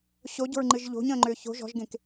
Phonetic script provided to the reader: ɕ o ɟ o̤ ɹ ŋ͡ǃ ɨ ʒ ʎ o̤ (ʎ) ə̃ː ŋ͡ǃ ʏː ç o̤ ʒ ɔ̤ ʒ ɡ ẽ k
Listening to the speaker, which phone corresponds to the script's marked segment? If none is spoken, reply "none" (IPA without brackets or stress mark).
ɲ